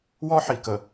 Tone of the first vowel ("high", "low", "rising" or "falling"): high